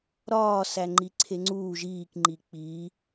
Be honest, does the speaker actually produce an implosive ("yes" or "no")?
no